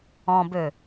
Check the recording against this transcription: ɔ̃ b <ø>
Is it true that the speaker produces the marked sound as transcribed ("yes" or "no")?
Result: yes